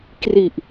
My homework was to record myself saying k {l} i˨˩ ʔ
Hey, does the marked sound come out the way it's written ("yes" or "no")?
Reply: no